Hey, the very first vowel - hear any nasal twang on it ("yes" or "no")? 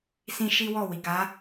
yes